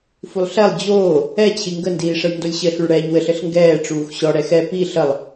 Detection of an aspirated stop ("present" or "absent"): present